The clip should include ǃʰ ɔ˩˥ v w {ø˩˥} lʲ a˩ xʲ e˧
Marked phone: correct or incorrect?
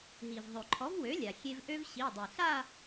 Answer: correct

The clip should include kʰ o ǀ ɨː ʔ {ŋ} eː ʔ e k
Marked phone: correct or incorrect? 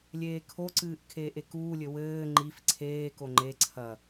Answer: incorrect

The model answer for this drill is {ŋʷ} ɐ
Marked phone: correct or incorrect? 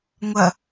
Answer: correct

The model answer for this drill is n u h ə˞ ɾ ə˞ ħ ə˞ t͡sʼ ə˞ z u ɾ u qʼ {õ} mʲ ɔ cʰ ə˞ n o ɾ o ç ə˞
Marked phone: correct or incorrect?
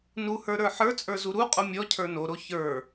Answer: incorrect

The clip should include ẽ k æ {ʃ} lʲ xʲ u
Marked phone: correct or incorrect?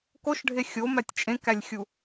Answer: incorrect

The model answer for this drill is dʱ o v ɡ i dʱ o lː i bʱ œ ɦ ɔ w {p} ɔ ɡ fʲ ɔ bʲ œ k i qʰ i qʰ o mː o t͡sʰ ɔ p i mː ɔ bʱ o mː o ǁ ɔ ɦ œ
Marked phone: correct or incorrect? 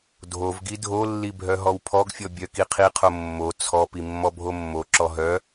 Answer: incorrect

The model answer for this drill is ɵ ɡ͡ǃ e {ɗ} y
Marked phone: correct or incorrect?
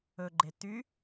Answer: incorrect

